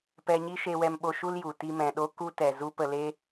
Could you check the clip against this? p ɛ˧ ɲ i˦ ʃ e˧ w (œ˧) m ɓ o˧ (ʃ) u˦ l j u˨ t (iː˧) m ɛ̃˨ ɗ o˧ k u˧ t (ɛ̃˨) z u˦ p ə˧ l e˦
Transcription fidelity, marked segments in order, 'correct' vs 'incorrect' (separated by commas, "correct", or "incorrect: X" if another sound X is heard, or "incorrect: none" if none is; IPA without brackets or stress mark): incorrect: ɛ˧, correct, incorrect: i˧, incorrect: ɛ˨